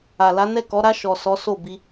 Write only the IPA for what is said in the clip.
a˨la˨˦nɛ˦˨kɔ˨˦ ɾa˧ʃɔ˨ sɔ˨˦so˦˨bi˧

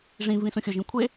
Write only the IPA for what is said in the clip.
ʐĩ vĩsũxʲʊʒĩ kʷʰe

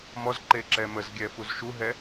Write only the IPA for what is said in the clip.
mɔz ǃeǁɛməzɡʲɛ fuzʃuɦɛ

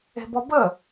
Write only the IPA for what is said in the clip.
e̤bɔbə

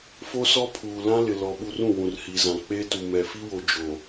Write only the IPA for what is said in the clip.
fo˦sɔ˦pʰuː˨ lã˦lɪ˨lɔ˨ ɓu˨r ũ˦˨wũ˨rhi˨zã˨ k͡peː˦tu˨ mɛ˨fi˦wo˨ d͡ʒo˨

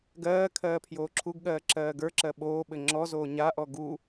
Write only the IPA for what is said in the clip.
ɡɜː kʰɜːpʰjoːǁʰuɡɠɜː ǁɜːɡə˞ǁɜ ɓoːɓɘ ŋ͡ǁɔzoː ɲaʔɔ ɡu

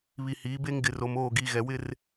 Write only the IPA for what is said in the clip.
βi˨hiː˨˦ be˦ŋɡɪ˨ro˨m oː˦˨ɡiː˨ ɣɛ˨wɪ˦˨r

